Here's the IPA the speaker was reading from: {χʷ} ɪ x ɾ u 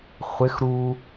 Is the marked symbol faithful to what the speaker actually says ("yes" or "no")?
yes